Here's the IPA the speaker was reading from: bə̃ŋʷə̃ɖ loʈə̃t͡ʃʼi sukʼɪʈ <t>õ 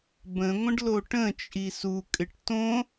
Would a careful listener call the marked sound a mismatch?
no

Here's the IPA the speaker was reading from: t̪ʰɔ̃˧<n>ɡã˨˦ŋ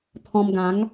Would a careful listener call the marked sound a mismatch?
yes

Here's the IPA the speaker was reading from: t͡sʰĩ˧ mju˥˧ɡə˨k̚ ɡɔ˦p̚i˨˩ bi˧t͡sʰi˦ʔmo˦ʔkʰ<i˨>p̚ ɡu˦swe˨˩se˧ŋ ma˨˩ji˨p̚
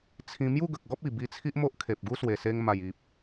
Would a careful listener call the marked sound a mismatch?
yes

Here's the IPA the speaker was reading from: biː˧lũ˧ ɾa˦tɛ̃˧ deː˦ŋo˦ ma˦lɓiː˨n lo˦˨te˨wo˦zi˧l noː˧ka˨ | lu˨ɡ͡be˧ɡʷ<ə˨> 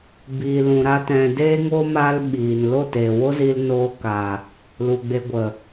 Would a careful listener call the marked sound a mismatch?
no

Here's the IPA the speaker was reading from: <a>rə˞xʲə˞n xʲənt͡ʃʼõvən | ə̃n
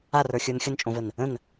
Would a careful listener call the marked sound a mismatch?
no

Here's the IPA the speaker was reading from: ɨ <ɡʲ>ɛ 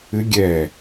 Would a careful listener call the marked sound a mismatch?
no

